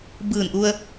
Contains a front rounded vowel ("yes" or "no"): no